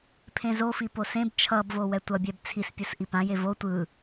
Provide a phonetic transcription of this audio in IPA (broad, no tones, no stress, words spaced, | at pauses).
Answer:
pʰẽzofi posẽb t͡ʃʰʌbvo wɛtʷʌbʲɛb t͡sʰispʲusʔi pãje vo tʷɯ